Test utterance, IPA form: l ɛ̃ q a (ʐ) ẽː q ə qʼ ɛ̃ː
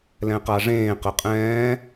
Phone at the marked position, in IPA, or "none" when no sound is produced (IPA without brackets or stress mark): ʐ